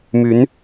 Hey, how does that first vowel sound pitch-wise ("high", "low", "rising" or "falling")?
rising